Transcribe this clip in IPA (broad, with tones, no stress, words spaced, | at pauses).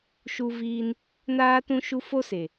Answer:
ʃu˦viː˦n | naː˦tũ˦ʃu˦ fo˦se˨